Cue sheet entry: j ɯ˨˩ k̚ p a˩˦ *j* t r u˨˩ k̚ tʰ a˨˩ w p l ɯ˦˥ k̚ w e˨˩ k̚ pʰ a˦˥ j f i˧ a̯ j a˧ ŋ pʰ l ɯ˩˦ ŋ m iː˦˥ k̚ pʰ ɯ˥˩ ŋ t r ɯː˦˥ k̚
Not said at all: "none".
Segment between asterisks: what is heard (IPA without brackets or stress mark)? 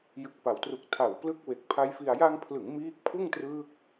w